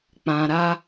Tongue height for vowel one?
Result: low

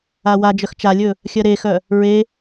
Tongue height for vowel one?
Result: low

